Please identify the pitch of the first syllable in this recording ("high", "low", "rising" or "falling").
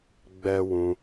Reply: high